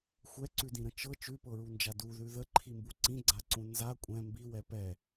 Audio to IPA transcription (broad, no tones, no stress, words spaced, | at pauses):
xʷɛǀʉdĩɾə̃ t͡ʃɤ t͡ʃʉpɤɹund͡ʒa duðʉ ðəǃʰimbu ǀĩɡ͡ǀaǀũ nza kʷʼɛ̃ mbiwɛ pɛ